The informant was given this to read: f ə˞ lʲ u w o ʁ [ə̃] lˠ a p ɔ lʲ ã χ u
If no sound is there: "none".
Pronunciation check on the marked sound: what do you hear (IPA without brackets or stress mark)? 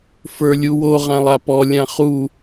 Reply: ã